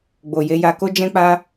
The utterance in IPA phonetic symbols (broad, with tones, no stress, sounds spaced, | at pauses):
ɡ͡b o˨ j e˧ j a˧ k o˦ d͡ʒ ɛ̃˦ k͡p a˦